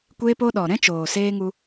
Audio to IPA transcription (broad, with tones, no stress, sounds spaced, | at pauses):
kʷ eː˦ p o˦ ɗ ɔ˨ ɾ ɛ̃˦ t͡ʃ oː˨ s eː˦ ŋ u˧